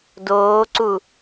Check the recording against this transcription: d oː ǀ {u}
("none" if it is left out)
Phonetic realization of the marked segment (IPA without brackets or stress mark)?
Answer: u